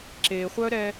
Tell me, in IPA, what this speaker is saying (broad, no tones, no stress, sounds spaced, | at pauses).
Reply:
ǁ e χʷ œ ɾ ɛ